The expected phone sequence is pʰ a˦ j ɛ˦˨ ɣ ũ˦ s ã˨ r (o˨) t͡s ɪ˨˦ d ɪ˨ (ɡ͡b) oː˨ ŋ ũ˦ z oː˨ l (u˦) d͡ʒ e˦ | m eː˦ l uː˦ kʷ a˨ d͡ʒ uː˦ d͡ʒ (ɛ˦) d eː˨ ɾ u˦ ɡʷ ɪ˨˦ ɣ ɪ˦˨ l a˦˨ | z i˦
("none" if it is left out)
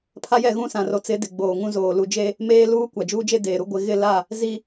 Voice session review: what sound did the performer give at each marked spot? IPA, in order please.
o˨, ɡ͡b, u˨, e˦

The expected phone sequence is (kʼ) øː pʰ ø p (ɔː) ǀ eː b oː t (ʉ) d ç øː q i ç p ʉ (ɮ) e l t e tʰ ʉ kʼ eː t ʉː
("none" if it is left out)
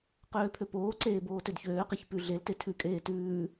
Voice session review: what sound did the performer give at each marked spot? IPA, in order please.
q, oː, ø, ɮ

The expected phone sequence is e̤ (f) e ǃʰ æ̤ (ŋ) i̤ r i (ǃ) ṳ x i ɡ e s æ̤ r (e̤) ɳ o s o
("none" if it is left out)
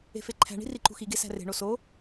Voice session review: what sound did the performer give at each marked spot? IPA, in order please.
f, ɳ, ǃ, e̤

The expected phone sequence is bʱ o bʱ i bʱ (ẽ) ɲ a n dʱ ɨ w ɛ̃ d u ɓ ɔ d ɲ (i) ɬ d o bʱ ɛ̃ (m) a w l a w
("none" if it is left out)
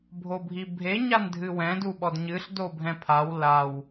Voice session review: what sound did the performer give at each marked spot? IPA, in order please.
e, ɨ, pʰ

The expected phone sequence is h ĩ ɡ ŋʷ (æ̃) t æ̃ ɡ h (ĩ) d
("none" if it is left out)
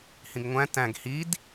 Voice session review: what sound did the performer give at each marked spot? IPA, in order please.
æ̃, i

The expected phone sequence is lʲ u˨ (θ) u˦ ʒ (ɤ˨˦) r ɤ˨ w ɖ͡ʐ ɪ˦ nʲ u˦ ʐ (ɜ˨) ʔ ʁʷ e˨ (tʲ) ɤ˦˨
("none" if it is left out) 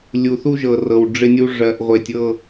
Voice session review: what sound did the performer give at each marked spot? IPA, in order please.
θ, ɤ˨, ɜ˨, tʲ

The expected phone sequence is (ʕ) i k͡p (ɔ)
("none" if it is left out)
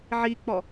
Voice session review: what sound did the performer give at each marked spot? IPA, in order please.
ʕ, ɔ

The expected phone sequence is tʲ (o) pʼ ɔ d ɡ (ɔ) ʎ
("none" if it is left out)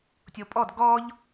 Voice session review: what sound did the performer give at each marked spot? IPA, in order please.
o, ɔ

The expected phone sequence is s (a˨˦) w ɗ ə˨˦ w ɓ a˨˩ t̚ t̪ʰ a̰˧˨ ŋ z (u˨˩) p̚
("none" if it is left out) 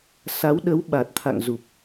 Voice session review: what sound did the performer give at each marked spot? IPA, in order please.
a˨˦, u˨˩

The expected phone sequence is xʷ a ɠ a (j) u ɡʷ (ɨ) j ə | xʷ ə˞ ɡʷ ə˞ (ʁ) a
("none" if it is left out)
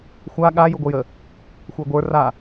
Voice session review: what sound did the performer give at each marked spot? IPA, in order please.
j, ə, r

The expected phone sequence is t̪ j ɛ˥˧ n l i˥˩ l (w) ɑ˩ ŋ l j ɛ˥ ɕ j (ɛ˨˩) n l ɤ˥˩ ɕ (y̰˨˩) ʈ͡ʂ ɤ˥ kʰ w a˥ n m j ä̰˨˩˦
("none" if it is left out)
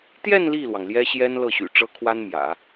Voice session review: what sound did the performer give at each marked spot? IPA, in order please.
w, ɛ˥, y̰˨˩

